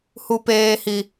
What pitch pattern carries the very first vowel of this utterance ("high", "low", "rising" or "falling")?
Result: high